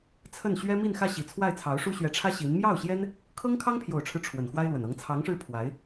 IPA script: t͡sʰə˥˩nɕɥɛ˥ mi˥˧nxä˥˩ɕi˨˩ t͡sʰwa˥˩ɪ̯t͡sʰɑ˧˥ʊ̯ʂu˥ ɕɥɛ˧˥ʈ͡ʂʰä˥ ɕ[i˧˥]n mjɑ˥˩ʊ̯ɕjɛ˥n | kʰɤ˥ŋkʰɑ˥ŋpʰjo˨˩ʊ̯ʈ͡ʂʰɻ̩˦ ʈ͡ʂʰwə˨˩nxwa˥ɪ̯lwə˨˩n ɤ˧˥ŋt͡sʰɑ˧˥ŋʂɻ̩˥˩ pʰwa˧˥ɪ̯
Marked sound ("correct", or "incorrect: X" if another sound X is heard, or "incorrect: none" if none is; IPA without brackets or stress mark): correct